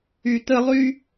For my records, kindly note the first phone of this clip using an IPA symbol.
y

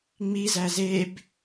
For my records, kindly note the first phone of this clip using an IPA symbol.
ŋ͡m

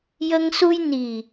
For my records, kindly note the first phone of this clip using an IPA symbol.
j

